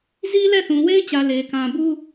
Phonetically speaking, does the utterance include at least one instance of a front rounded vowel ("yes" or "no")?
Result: no